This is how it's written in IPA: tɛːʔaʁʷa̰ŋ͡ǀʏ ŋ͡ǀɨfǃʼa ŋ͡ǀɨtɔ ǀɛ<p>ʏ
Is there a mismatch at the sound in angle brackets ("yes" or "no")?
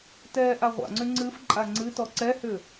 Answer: yes